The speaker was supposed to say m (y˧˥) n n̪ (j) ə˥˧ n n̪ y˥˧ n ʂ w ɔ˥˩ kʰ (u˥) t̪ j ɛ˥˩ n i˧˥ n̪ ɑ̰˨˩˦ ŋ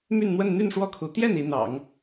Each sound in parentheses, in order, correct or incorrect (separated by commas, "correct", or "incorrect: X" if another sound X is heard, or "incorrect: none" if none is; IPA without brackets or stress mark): incorrect: y˥˧, incorrect: w, incorrect: u˧˥